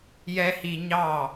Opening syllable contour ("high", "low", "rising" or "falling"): high